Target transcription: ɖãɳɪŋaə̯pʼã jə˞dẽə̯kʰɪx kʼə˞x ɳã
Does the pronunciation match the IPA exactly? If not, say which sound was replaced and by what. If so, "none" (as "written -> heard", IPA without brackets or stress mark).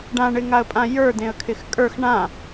none